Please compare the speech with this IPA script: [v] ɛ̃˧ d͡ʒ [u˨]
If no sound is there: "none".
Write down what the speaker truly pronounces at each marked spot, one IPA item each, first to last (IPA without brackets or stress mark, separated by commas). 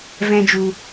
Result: v, u˨